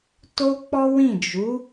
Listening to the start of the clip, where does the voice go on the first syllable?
high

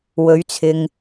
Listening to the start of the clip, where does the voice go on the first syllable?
rising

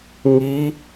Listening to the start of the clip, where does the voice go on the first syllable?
rising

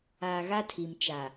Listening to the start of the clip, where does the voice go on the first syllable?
low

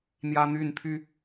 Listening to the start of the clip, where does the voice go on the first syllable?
high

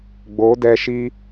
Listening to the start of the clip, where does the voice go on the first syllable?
rising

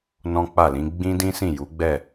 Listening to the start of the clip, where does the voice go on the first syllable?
high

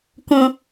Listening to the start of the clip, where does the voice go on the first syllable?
high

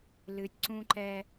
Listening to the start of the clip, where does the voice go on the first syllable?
rising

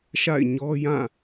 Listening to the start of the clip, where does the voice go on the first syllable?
falling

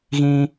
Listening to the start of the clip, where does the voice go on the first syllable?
high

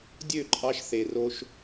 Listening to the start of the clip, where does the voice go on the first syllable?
falling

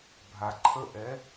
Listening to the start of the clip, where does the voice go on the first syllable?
low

